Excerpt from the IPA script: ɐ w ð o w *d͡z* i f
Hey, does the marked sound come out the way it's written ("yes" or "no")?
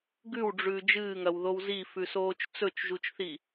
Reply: no